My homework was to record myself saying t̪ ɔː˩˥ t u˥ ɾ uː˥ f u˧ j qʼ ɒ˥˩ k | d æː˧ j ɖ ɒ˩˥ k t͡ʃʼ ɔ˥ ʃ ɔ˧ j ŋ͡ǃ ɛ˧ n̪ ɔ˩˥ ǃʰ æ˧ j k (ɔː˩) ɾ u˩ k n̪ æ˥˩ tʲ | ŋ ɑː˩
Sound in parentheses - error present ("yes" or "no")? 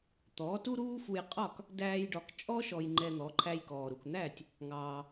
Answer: no